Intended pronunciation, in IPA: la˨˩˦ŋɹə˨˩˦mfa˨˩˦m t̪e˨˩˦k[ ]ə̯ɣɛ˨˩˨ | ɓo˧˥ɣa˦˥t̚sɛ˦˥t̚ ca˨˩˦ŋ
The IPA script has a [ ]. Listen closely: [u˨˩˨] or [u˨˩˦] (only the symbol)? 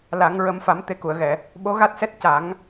u˨˩˨